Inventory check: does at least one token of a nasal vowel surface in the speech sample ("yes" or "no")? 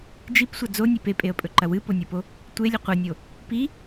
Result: no